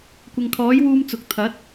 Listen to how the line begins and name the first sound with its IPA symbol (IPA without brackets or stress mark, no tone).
kʷ